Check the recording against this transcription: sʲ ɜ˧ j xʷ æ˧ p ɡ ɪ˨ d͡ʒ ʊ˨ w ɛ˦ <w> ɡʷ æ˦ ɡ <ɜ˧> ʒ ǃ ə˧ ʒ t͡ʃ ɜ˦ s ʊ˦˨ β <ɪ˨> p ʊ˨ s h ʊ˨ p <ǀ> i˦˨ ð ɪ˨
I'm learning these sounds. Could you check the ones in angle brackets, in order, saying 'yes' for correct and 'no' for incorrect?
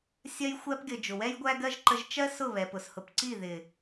no, no, no, yes

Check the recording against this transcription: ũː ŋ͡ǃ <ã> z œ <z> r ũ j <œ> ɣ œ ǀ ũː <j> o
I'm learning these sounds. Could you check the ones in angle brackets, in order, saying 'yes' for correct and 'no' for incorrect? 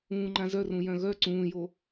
yes, no, no, yes

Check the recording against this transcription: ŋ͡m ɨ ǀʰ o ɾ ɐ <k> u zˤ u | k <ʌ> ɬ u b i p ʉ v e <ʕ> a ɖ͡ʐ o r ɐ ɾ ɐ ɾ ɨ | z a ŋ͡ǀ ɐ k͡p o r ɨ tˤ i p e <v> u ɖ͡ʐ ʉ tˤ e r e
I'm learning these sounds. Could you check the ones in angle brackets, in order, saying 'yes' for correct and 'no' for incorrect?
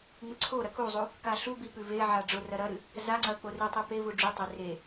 yes, no, yes, yes

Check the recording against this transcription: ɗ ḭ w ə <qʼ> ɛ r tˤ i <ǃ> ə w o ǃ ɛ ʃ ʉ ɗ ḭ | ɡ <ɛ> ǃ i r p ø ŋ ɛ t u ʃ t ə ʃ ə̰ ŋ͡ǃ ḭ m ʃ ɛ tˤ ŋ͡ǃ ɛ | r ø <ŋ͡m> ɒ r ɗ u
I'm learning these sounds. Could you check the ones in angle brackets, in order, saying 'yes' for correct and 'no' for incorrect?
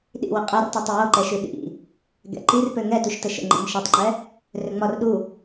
yes, no, no, yes

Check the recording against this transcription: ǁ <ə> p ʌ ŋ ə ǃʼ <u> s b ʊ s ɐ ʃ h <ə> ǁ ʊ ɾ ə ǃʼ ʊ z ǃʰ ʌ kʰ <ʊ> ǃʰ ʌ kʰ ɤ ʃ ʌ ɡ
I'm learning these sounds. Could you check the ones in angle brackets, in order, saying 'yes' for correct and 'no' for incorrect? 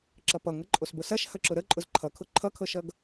no, no, no, yes

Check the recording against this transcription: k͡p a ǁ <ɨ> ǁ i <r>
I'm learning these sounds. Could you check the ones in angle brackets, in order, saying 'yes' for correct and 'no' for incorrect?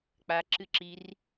yes, yes

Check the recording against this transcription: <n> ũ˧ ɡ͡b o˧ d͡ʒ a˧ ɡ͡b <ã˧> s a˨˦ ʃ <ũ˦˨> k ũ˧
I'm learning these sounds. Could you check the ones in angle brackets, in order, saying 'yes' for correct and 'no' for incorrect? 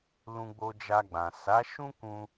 no, no, no

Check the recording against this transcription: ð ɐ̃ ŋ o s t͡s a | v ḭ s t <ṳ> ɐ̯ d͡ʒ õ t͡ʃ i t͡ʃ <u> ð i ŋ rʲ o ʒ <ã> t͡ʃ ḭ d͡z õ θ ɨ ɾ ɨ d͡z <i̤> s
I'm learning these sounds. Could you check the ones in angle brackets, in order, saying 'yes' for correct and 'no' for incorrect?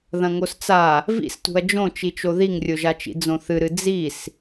yes, no, no, no

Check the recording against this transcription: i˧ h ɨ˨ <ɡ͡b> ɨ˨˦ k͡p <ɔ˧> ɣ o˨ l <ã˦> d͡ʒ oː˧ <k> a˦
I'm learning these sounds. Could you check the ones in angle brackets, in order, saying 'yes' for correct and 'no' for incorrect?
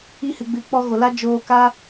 yes, yes, no, yes

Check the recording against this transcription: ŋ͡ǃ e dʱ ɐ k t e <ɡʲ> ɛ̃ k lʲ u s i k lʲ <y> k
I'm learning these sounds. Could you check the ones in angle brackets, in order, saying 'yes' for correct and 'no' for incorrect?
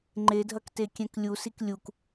no, no

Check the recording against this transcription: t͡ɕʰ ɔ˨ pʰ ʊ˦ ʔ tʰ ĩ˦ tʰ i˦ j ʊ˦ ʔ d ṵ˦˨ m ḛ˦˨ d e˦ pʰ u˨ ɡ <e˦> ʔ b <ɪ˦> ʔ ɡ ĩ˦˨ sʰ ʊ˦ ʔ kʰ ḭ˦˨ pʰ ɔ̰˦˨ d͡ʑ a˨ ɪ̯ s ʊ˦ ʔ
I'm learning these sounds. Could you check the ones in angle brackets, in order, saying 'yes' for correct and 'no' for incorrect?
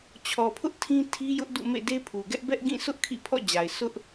no, no

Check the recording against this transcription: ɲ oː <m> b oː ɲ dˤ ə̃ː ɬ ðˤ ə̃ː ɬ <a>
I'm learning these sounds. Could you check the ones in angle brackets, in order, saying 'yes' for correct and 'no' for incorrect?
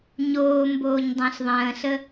yes, no

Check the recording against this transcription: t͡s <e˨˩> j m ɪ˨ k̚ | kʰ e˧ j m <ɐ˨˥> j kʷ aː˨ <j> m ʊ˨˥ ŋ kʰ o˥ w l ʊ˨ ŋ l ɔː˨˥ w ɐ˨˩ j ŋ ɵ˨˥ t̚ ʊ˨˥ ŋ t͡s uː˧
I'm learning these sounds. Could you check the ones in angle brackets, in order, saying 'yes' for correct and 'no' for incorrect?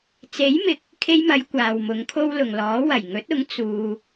no, no, no

